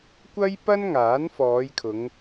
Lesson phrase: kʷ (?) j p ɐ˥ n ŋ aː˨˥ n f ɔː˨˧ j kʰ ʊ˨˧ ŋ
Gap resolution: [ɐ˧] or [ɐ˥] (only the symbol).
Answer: ɐ˥